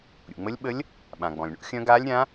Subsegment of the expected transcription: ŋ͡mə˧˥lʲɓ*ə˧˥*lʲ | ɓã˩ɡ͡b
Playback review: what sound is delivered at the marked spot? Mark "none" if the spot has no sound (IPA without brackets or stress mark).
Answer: ə˧˥